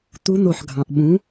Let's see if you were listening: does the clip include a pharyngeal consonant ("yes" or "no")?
yes